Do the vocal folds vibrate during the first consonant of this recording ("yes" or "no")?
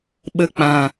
yes